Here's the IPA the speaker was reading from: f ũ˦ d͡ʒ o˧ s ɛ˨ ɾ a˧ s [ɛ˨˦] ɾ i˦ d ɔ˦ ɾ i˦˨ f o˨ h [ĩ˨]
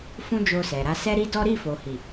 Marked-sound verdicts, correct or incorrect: incorrect: ɛ˦, incorrect: i˨

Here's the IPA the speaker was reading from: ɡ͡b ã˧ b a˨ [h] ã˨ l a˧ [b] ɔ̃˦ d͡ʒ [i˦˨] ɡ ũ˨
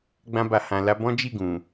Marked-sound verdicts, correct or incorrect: correct, correct, correct

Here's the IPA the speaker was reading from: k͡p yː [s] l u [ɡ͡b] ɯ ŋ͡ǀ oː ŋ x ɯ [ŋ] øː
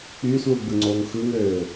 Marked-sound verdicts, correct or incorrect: correct, correct, correct

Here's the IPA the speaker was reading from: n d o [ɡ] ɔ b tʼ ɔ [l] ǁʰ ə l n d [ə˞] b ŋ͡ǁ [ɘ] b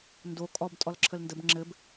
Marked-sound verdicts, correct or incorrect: incorrect: kʼ, correct, incorrect: ə, correct

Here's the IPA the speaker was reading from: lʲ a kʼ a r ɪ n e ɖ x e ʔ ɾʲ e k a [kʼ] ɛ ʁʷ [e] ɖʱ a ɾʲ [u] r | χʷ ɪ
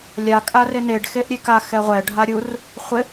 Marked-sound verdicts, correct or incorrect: incorrect: x, incorrect: ɛ, correct

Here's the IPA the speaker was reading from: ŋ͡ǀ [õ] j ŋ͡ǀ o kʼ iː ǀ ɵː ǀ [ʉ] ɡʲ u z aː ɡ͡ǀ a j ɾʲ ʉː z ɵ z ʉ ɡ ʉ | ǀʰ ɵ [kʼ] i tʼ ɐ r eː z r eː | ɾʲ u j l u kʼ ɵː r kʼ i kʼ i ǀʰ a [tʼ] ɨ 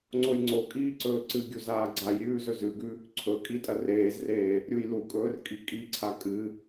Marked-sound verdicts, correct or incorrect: incorrect: o, incorrect: ɨ, correct, incorrect: kʼ

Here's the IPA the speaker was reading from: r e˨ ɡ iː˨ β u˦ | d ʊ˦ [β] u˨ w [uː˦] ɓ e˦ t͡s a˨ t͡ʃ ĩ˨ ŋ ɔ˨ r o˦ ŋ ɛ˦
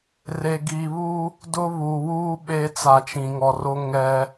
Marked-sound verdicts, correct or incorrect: correct, correct

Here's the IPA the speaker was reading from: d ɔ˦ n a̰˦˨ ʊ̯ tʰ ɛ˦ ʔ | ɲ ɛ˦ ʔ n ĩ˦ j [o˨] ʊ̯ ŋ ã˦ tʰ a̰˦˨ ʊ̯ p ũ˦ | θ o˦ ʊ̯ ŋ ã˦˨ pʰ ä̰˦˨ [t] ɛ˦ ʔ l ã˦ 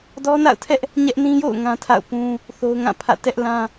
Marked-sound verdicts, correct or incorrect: incorrect: o̰˦˨, correct

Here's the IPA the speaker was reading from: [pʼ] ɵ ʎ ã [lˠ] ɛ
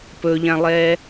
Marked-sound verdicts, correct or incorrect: incorrect: p, correct

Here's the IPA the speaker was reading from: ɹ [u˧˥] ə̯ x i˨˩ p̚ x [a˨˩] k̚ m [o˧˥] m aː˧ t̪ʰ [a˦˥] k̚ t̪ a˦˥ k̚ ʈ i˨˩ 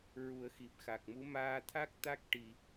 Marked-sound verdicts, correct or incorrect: incorrect: u˨˩˦, correct, incorrect: u˧˥, correct

